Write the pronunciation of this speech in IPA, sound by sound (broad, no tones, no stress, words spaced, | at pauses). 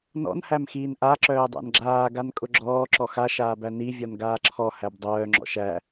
nɔ̰n hæmxiːnʔa ǁœːdˤæ̰nɡ͡ǁaː ɡankʼʊɡ͡ǁɔː ǁɔxa ʃaːbæni vʲɔnɡaːǁʰɔ hæbdˤœː ŋ͡ǁɔ̰ʃæ